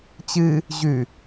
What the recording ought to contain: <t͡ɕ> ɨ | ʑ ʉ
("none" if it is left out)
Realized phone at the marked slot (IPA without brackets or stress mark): t͡ɕ